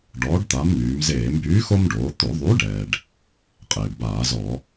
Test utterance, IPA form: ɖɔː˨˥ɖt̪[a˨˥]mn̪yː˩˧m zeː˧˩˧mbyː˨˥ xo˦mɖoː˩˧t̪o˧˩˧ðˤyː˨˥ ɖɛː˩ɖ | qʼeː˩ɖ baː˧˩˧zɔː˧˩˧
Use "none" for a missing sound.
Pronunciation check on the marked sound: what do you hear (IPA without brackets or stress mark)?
a˨˥